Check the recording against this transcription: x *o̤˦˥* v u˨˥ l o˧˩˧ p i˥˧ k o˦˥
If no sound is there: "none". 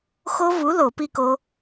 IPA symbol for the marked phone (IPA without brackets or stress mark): o˦˥